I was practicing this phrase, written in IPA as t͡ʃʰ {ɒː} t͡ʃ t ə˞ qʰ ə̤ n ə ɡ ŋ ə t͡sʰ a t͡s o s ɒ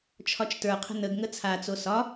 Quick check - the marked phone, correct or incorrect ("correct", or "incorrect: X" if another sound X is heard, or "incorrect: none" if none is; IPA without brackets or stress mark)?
incorrect: ɒ